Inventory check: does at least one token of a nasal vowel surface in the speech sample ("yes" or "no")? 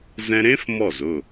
yes